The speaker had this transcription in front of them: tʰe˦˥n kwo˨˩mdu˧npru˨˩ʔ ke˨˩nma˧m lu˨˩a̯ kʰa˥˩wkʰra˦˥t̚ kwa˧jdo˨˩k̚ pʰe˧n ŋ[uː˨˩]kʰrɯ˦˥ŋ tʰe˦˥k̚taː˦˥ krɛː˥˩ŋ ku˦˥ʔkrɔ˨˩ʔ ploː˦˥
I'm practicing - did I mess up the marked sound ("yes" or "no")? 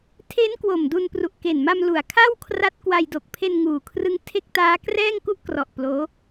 no